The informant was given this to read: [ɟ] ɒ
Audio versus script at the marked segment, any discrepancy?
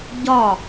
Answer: no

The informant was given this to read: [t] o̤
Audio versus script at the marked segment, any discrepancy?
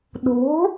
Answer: yes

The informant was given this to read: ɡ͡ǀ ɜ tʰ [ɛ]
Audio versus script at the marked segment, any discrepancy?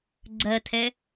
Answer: no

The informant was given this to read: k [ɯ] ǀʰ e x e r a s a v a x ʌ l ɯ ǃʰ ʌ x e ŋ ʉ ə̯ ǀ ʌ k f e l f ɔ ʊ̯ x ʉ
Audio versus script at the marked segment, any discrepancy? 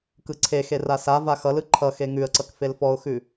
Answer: no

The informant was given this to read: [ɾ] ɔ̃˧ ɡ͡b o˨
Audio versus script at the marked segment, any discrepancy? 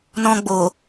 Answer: yes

